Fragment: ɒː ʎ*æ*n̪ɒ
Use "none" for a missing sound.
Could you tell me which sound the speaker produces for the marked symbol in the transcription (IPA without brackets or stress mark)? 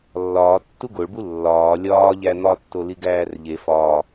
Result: æ